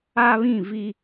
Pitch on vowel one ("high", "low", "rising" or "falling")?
high